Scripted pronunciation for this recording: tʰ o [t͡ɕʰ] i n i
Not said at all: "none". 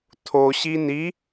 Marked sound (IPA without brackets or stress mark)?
ɕ